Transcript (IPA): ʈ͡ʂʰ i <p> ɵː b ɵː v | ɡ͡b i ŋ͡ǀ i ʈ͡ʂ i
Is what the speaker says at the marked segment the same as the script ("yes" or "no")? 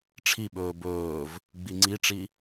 no